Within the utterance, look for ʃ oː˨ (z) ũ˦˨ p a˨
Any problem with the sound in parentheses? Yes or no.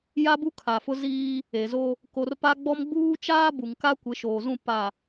no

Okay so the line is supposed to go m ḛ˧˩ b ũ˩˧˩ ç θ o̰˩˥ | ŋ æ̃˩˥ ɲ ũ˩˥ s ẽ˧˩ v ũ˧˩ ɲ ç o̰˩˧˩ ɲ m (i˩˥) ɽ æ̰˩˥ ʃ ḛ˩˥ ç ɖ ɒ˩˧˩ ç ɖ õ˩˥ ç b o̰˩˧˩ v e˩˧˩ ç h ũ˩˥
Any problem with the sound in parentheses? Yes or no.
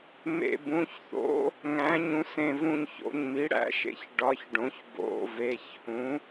no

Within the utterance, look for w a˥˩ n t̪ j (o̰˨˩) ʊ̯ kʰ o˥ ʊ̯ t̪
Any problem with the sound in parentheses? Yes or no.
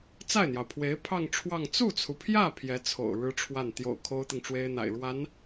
no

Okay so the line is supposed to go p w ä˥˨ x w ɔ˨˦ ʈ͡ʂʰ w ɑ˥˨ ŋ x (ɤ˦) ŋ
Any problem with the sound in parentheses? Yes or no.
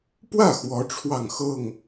yes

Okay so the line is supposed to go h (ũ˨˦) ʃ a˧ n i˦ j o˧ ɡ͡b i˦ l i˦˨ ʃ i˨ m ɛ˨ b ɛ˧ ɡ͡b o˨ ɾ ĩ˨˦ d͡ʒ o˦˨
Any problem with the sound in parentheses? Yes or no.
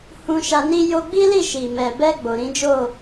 yes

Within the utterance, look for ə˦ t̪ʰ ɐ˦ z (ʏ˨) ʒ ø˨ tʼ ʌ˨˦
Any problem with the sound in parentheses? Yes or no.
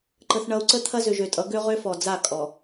no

